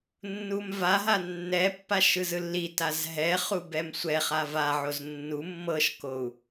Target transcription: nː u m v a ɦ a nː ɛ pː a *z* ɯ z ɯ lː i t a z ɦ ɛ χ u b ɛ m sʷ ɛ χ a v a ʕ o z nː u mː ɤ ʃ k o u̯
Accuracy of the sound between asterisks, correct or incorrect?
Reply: incorrect